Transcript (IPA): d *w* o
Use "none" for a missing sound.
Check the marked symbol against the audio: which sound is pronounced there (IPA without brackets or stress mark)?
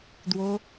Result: w